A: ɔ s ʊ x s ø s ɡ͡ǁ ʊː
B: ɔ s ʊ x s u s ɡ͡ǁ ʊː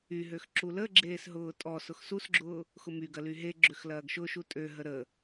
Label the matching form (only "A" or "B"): B